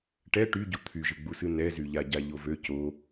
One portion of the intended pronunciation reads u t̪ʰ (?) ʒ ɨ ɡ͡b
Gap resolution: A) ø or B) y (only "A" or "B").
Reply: B